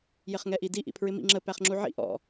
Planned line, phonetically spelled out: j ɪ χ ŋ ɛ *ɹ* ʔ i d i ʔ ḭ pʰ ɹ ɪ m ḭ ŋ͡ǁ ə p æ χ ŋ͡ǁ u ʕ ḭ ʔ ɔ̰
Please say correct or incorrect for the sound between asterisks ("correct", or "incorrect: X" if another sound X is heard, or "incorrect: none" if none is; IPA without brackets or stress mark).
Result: incorrect: none